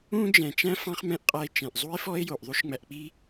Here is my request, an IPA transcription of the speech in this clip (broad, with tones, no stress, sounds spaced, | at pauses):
ũ˥ d͡ʒ ɛ̃˩ t͡ʃ æ̃˥ f ɑ̃˥ χ m ɛ̃˥ ʔ qʼ æ˧ e̯ t͡ʃ ɛ̃˩ ʔ zˤ u˥ e̯ f ɔ˥ e̯ j o˩ ʔ ðˤ u˥ ʃ ŋ͡m æ˧ ʔ k͡p i˥